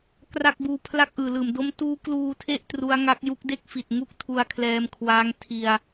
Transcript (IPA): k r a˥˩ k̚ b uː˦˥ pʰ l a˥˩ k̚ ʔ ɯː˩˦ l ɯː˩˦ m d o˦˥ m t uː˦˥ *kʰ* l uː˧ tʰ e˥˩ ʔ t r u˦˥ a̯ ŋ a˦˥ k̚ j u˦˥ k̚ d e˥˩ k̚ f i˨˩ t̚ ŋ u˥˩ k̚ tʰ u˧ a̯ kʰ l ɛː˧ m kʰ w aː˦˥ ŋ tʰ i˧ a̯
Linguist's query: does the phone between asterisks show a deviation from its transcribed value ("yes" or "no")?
yes